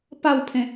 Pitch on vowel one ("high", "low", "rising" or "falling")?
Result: falling